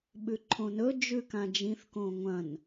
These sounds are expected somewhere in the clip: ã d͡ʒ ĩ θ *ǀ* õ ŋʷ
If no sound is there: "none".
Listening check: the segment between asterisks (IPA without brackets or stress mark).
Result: k